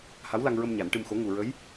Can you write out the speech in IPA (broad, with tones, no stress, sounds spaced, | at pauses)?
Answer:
h a˧˥ w l a˧ ŋ ɹ ə˧ m ɲ a˨˩˦ n ʈ ɨ˧ m x o˧˥ ŋ u˨˩ ɹ ə˧˥ j